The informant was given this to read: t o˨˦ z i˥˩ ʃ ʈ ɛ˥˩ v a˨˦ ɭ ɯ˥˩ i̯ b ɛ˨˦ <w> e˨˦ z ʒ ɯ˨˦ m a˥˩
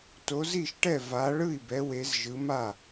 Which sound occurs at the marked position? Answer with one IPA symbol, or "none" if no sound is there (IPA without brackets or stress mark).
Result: w